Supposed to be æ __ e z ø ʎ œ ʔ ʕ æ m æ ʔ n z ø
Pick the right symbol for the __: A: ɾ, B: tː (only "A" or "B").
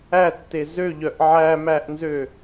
B